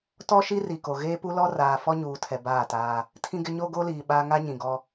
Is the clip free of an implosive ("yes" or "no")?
no